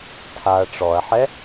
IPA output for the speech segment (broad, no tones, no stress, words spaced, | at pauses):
tʰaɐ̯ ʈ͡ʂɔɐ̯ħɛ